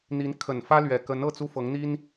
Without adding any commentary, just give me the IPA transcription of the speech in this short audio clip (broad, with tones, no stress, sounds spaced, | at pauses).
n̪ i˧˥ n kʰ ə˨˩ n f ä˥ l ɥ ɛ˨˩ k ə˧˥ n ɤ˥˩ t͡s u˥ f ɤ˧˥ ŋ n̪ i˥ n